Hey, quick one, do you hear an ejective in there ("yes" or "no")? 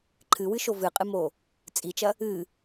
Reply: yes